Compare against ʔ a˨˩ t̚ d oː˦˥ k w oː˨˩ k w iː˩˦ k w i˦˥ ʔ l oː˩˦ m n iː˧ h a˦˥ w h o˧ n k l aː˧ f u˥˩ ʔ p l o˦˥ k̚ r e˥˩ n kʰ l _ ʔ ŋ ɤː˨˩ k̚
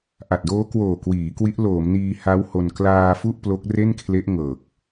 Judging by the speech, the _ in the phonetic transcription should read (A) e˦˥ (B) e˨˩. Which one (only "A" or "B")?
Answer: A